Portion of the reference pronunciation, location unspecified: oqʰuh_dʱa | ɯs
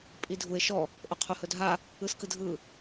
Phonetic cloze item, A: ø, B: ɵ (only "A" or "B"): B